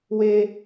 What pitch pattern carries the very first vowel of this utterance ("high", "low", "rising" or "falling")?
high